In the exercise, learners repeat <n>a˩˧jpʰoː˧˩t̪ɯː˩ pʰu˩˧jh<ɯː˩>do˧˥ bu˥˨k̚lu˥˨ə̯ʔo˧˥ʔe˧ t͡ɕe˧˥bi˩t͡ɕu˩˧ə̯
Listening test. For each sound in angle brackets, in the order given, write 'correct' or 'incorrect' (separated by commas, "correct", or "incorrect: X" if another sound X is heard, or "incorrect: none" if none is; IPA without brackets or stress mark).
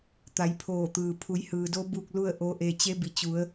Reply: incorrect: t̪, correct